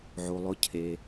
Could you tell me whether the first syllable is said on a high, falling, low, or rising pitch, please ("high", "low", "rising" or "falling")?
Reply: low